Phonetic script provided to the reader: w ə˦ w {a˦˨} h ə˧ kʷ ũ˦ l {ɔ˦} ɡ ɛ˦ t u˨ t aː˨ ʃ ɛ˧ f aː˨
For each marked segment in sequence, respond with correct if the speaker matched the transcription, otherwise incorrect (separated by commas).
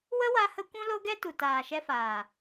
incorrect, incorrect